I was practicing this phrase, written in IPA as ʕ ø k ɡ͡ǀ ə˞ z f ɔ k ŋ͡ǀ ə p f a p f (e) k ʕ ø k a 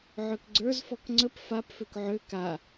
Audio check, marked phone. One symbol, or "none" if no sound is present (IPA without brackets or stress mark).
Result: ø